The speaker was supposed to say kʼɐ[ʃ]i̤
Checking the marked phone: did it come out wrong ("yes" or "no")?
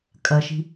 no